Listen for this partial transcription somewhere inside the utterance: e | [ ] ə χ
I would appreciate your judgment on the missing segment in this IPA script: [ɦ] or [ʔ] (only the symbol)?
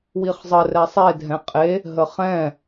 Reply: ɦ